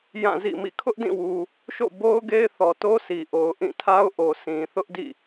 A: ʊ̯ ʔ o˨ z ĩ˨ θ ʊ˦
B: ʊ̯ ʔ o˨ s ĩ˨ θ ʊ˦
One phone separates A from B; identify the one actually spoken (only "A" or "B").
B